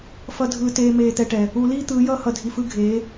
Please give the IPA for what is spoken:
f ʌ˨ dʱ ɯː˨ t eː˨ m eː˨ t̪ ɛ˨ ʈ ɛ˨ | u˨ l iː˦ t̪ ɯː˨˦ j ʌː˦ h ʌ˨ dʱ i˨ f ɯ˦ ɡʱ eː˨˦

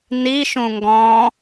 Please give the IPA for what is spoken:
n i ʃ ũ ŋ ɡ ɔ̃

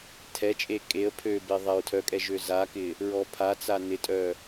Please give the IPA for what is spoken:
tʰ ɛ t͡ʃʼ e kʼ e ə̯ pʰ ø b e ðˤ ɛ ɹ tʰ œ kʼ ɛ ʒ ø z a k ɪ | ɹ ɔ pʰ a t͡s a n ɪ tʼ œ

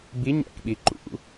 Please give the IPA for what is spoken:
b i ɲ æ̰ k ɓ i ǃ ṵ

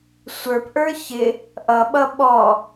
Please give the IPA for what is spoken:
sʷ ə˞ p ʔ ə˞ ç ɪ | ʔ ʌ ɓ ʌ ɓ ɔ

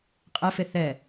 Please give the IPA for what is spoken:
qʼ ɛ f e θ ɛ

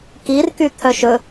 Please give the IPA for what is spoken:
k i r k y t̪ʰ œ ʃ ɵ

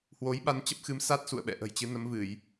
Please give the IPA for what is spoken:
h w o˨˦ j ɓ a˧ n t͡ɕ ə˦˥ p̚ x ɨ˨˦ m s a˦˥ t̚ s ṵ˧˨ ə̯ ɓ ɛ̰˧˨ ʔ ə̤˨˩ j t͡ɕ ɨ˨˦ n ə˨˦ m v ɨ˧˩˨ j

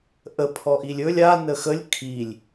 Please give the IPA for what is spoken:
ʔ ə pʰ ɔ ʔ i lʲ ɵ lʲ a n ə x ə lʲ kʰ i lʲ

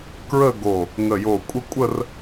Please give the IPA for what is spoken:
k ɹ ə˥˧ ɡ o˧˩ | ŋ ə˧˩ j o˧˩ kʷʼ ə˥˧ kʷʼ ə˥˧ r

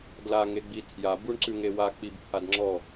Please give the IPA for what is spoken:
d l a ŋ e ɡ͡b i tʰ j a b u ɳ ǀ ʉ ŋ e w a k͡p i b pʰ a d ŋ͡ǁ ɔ

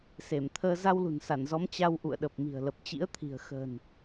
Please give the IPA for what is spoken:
s e˧˩ m t̪ʰ əː˧ z a˧ w l ṳ˨˩ n s a˧˩ n z ɔ˨˦ m t͡ɕ a˧ w ʔ ṵ˧˨ ə̯ ɗ ə˨˩ p̚ m i̤˨˩ ə̯ l ə˨˩ p̚ t͡ɕ ḭ˧˥ ə̯ t̪ʰ i̤˨˩ ə̯ x ə̤ː˨˩ n

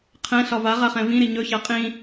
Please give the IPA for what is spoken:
qʰ ɛ̃ ɬ ɒ v a ʁ a χ ɛ̃ v ĩ ɾ i ɲ ɵ ç a qʼ ĩ

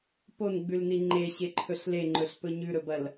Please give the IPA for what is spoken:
p o n ɡ͡b ʉ l n i ŋ͡ǃ e ɕ e ǃʰ ɵ ɬ l e ŋ͡ǃ ɵ ɬ p ɵ ɲ ʉ ɾ ɵ b ɐ l

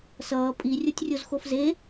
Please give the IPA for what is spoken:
s ʌː pʼ i rʲ o tʲ rʲ o z x o f z e

